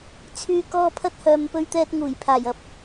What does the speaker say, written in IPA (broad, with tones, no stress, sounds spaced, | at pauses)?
t͡sʰ yː˥ k ɔː˥ pʰ ɐ˥ t̚ h œː˨ m p ɵ˥ ɥ t̪ ɛː˥ t̚ ŋ uː˨˩ j pʰ aː˨˩ j ɐ˨ p̚